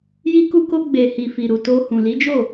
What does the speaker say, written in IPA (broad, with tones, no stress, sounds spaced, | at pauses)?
j i˧ k u˧ k o˧ ɡ͡b e˨ h i˨ f i˨ ɾ u˨ t o˧ h ũ˨ l i˨˦ d͡ʒ o˦˨